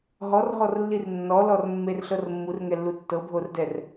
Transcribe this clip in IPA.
ɦ ɔ r ɦ ɔ r lː i r nː ɔ l ɔ r mː e r ɬ ɤ r mː u r ŋ ɛ lː u tː ɤ bʱ o r d ɛ r

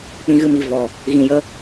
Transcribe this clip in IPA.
k͡p ĩ˦ ɣ ɨ˦ m i˧ v ɔ˨ | ɣ ĩ˨ j ə˧

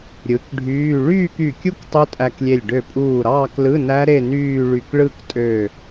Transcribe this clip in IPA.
ɾʲ ɯ˩˥ k ɖʱ yː˧˥˧ ɭ yː˥˧ k y˧˩ kʲ u˥˧ k tˤ u˦˥ tʼ æ˧ k lʲ e˧˩ lʲ ɖ ø˧˩ pʼ uː˧˩ ɾ ɑː˥˧ k l ɯ˧˥˧ n æ˦˥ ɾ e˥˧ n yː˥˧ ɭ y˧˩ k ɭ ɯ˥˧ k tʼ ø˧˩

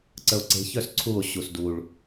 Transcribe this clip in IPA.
ǀ ə o̯ ǀ e̤ ç œ s ǀʰ u o̯ ɕ u s d u ɭ

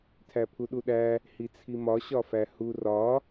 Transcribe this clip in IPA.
tʰ æ pʰ u ɗ u ɗ æ | h i t͡sʰ i m ɒ ɕ ɒ f æ h u r ɒ

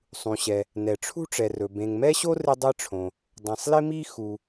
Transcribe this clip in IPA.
sˤ ũ˩ ɕ ɛ˩ | n ɛ˩ ʈ͡ʂʰ ṳ˥ ʈ͡ʂ ɛ˩ r ɵ˩ b ẽ˩ ŋ m ɛ˥ ɕ o˥ r ɪ˥ dˤ ɛ˥ ʈ͡ʂʰ õ˩ | dˤ ɛ̃˩ sˤ l ɪ˥ m i˥ x u˩

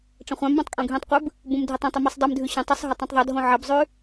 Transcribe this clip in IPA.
ʈ͡ʂ ɐ̃ χʷ ã m b õ tˤ kʼ õ ɡʱ ĩ tˤ qʷ ɨ b | b ũ m dʱ i tˤ õ tˤ i m ɨ sˤ dˤ ɨ m dʱ ʉ ɕ ɐ̃ tˤ ɨ sˤ ɦ ɐ tˤ ũ tˤ ðˤ ɐ dʱ õ ʕ ɐ b zˤ ʉ

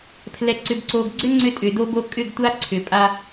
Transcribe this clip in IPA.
pʰ l ɛ˨ ǀ ʏ˨ b ǀ o˨ ɡ ɡ͡ǀ ʏ˦ ŋ͡ǀ ʏ˦ tʼ ʏ˨ d̪ o˦ b o˦ kʼ ʏ˦˨ ɡ tʷ a˦ ǀʰ ʏ˨ pʼ a˦

